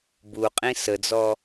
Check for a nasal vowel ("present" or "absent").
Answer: present